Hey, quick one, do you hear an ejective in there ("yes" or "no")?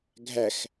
no